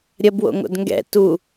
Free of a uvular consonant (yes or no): yes